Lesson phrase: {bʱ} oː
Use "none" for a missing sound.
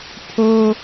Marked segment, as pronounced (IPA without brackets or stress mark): pʰ